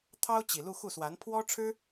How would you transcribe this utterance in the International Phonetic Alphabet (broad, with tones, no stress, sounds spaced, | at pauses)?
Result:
t̪ʰ ɑ˥ ʊ̯ t͡ɕ i˨˩ l u˥˧ x u˥˩ s w a˧˥ n pʰ w ɔ˥ ʈ͡ʂʰ ɻ̩˥